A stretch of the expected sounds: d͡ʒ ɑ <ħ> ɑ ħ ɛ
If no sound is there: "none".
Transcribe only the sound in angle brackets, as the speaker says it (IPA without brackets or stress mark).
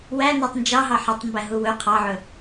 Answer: ɦ